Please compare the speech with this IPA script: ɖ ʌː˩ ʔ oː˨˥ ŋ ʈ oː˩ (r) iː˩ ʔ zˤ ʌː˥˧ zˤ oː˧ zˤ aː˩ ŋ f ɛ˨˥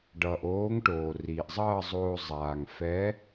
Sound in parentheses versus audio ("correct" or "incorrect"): correct